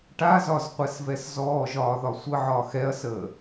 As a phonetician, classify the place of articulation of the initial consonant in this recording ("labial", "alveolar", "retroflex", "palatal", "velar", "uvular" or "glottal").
retroflex